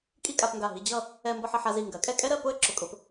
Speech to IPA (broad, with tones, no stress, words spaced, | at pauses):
kʼi˥˧kʼa˧pŋɡa˧˩ ɦi˧d͡ʑʌ˥˧ | ɛ˧mbʌ˧ħ ʌ˩˧ħa˥˧zi˧˩ ŋɡɜ˩˧kʼɛ˥˧kʼɛ˥ɾɜ˥˧ pʊ˥˧ə̯ǁʊ˧˩kʼʊ˧p